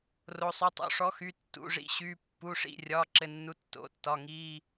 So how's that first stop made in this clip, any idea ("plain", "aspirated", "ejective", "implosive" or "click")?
plain